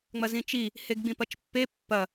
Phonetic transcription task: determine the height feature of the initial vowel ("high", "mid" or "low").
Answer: low